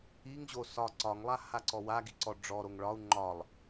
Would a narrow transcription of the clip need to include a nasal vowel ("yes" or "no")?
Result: no